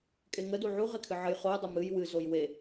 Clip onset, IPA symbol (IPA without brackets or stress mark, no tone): kʼ